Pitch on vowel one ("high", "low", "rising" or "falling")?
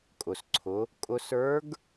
low